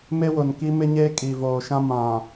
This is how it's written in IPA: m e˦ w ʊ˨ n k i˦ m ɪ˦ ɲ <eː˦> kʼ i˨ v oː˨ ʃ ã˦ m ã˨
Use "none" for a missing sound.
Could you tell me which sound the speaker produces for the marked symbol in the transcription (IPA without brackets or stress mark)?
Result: eː˦